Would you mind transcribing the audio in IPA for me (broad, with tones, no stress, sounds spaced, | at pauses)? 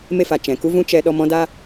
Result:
m e˦ f a˨ t͡ʃ ɛ̃˨ k u˦ v ũ˦ t͡ʃ ɛ˧ ɗ ɔ˧ m ɔ̃˦ d a˦